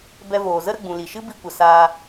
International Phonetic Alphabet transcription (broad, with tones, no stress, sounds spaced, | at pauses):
b ɛ˧ v oː˨ z ə˦ ɾ ə˧ ɡ͡b ũ˨ l i˨ ʃ ɨ˦ b i˧ kʷ ə˨ s aː˧